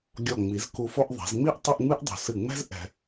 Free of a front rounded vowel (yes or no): yes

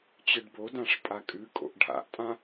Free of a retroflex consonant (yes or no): no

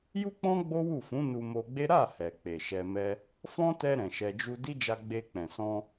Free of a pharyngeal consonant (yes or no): yes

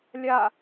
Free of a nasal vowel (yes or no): yes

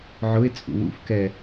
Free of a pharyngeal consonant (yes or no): no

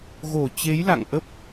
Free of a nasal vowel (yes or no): yes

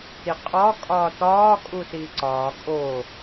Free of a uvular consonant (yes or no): no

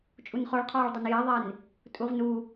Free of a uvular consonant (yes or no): no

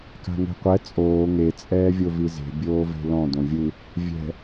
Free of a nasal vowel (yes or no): no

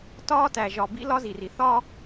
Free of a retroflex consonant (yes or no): yes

